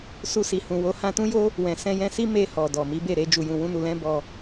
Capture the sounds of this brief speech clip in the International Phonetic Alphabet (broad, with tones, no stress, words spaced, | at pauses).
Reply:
su˧si˨hũ˨wo˨˦ hã˧tũ˦jo˦ | wɛ̃˨ sɛ̃˧jɛ̃˧si˦ me˧hɔ˨ dɔ˨mi˨˦be˦˨ ɾe˧ d͡ʒu˨jũ˨wũ˧nu˨ lɛ̃˧ bɔ˧